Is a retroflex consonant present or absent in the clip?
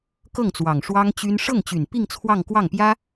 present